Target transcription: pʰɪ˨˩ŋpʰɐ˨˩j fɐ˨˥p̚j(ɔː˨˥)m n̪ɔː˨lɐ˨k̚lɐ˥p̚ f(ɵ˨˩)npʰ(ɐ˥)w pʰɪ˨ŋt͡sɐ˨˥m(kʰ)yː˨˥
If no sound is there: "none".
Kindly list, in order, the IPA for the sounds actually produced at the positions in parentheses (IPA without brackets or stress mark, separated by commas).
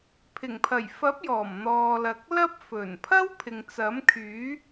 ɔː˨˩, ɵ˨˩, ɐ˥, kʰ